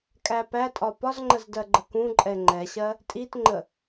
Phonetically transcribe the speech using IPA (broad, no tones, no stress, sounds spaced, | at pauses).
kʼ æ p æ tʼ ɒ p ɒ z ŋ͡ǃ ə z d ɜ ɡ͡ǃ ə k ũ ǃʼ ɛ ŋ͡ǃ ɛ ɕ ɜ | tʼ i t ŋ͡ǃ ə